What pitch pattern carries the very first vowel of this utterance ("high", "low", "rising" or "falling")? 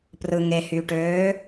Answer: low